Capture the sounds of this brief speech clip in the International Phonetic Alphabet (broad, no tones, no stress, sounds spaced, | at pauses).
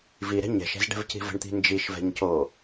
v i ɾ ɛ̤ ɲ ɛ̤ ʃ ɛ̤ z ɖ ɛ̤ v c i̤ v ə̤ ɳ t̪ i̤ n d͡ʒ i ʃ v ɛ̤ ɲ c o